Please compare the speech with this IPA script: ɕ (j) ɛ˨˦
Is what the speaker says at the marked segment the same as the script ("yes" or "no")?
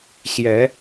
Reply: yes